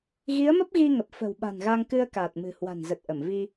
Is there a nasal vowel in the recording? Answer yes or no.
no